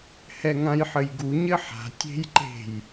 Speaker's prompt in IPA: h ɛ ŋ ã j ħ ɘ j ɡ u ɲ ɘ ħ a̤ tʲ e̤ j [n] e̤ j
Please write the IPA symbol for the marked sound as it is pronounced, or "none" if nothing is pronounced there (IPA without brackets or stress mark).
ǃ